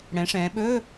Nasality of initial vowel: nasal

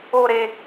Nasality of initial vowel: oral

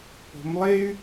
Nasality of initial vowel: oral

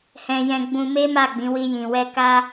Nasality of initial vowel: nasal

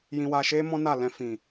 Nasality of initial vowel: nasal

